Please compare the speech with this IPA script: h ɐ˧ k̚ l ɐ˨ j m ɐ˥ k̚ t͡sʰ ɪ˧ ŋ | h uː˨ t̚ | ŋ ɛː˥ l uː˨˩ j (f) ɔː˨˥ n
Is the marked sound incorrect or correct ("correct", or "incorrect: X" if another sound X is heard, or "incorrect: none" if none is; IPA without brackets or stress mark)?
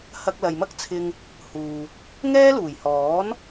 incorrect: h